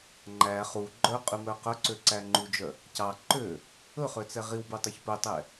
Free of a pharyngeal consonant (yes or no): yes